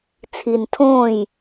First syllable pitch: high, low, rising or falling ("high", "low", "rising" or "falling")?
low